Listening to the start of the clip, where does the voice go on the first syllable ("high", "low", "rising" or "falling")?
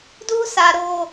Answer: high